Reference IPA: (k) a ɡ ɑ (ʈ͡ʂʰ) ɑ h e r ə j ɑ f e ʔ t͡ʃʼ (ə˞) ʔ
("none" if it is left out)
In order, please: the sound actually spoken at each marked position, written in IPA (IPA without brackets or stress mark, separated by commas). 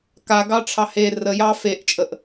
k, ʈ͡ʂʰ, ə